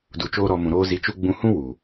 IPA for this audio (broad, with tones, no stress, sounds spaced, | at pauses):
d u˧ t͡ʃ oː˦ ɾ ɔ˧ m ũ˨ ɾ oː˧ z i˧ t͡ʃ u˦ ɡ͡b ũ˧ h ũ˦ w u˨